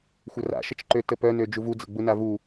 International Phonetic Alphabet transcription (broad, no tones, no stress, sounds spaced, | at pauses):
xʷ ə r a̰ ʃ ə t͡ʃ ǃ ø t ə p œ n ø d͡ʒ u v u d͡z ə̰ ɡ͡b u n a v u